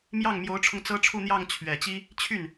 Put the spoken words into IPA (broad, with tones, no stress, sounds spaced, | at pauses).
m j ɑ˥˩ ŋ m j o˧˥ ʊ̯ ʈ͡ʂʰ ʊ˧ ŋ t͡s ɤ˥ ʈ͡ʂʰ u˥˧ n̪ j ɑ˥˩ ŋ t͡ɕʰ ɥ ɛ˨˩ t͡ɕ i˥ | t͡ɕʰ y˥˩ n